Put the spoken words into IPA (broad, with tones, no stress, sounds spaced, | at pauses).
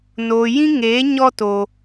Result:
n oː˨ j ĩ˦ ŋ eː˨˦ ɲ ɔ˧ t oː˨